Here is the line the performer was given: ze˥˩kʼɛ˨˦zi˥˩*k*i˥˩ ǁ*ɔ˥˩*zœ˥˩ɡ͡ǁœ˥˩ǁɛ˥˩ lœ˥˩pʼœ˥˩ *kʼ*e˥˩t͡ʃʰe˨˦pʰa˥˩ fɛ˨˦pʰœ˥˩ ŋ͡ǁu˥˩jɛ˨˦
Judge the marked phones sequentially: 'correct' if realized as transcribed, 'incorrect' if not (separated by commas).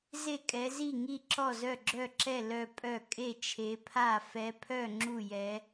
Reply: incorrect, correct, correct